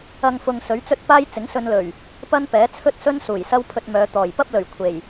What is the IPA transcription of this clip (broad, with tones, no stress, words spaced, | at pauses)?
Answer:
ɐ˧ŋfʊ˨ŋ sɵ˨˥ɥt͡sɵ˥t̚ paː˥jt͡sɪ˨˥ŋsɵ˧nlɵ˨˩ɥ | pɐ˥npɛː˨˥t͡sʰɵ˥t̚sɵ˥n suː˨˩j sɐ˥wpʰɵ˧t̚mœː˨˧ t̪ɔː˨˩j pɐ˥p̚lɵ˨˩ɥ kʷʰe˨˩j